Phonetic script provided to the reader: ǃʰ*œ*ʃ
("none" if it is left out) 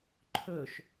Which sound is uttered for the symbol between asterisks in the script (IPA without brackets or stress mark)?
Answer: ɵ